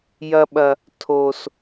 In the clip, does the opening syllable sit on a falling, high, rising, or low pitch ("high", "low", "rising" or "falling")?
low